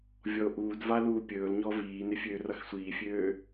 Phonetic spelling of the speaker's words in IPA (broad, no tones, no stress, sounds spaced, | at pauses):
vʲ ɔ o̯ ʔ uː d v a l uː pʲ ɵː l ɲ ɔ v iː n ɪ fʲ øː r ʌ x sʷ iː fʲ øː